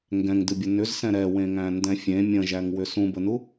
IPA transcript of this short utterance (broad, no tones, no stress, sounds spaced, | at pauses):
ŋ ɡ ɛ̃ ŋ d ɨ bʲ ə n ʏ z s ɛ̃ ɾ ɛ w ẽ ŋ æ̃ n d ɛ̃ fʲ ẽ mʲ ə̃ ʒ æ ŋ w ʏ s ũ b ə n u